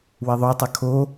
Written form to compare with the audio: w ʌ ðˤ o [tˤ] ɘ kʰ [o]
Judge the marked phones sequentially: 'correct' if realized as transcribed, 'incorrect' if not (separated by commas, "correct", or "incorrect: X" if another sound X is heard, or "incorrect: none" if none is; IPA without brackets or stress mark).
correct, correct